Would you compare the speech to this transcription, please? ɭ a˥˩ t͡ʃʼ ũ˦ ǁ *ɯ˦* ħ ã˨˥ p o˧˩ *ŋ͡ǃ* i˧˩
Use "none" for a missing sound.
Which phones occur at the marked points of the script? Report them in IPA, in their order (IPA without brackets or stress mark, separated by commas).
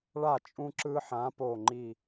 ɯ˦, ŋ͡ǃ